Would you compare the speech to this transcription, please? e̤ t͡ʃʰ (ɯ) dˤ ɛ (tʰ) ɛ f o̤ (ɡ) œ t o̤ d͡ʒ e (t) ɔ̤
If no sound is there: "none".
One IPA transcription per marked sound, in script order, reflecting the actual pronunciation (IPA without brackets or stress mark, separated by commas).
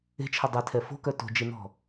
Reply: ə, tʰ, k, n